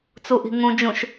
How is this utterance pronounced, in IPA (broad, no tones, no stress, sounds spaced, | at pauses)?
t͡s u ʔ i̤ ŋ ũ d͡ʒ ũ ʃ